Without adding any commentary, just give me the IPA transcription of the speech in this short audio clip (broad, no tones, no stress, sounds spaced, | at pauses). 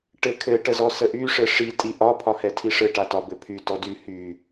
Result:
ʈ ɘ kʰ ɘ ʈ ə z ɔ s ə ʔ y ʂ ɘ ʂ i tʼ i ʔ ɒ pʰ ɒ h ɛ tʰ i ʂ ɘ ʈ a t ɒ b ɘ pʰ y t ɔ d y h y